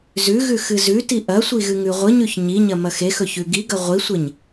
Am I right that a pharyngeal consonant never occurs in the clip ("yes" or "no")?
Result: yes